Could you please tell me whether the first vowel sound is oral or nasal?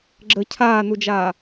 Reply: oral